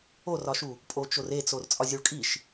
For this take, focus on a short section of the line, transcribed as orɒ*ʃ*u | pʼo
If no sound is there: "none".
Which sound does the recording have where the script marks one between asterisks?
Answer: ʃ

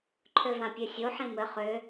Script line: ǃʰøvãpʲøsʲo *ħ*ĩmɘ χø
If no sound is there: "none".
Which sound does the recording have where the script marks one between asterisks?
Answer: ħ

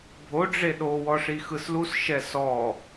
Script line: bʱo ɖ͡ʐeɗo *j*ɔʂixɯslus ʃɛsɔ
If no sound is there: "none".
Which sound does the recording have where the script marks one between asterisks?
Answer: w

